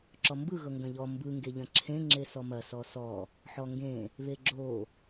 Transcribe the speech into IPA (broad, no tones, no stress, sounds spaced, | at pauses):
ǁ ɔ m b ɯ ɣ ɤ ŋ ɡ ɐ̃ ʎ ɔ m b ɯ ŋ ɡ e ʎ ɐ̃ ǁʰ ẽ ŋ͡ǁ e s ɔ m ɐ s ɔ s ɔ | ħ ɔ ŋ ɡ ẽ | β e ɡ͡ǁ o